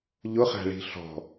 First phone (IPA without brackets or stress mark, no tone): ʎ